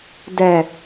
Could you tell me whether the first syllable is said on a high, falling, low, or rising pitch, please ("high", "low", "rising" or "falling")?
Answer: low